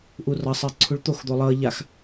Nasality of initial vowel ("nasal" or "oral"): oral